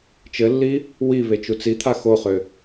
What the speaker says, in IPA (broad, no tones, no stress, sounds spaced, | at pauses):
t͡ʃ ɘ lː i | w i β e t͡ʃ u t͡s i t̪ʰ a x o χ ø